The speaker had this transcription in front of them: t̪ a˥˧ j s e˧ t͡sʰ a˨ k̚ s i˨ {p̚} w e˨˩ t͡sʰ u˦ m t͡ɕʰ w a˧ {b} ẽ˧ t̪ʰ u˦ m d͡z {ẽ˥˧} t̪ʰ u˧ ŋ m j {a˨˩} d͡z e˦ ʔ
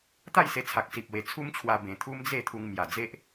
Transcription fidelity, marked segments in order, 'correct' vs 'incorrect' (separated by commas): correct, correct, incorrect, correct